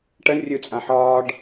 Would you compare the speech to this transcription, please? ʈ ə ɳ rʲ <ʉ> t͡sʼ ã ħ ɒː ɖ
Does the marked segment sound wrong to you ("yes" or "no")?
no